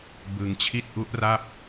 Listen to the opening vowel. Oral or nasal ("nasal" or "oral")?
oral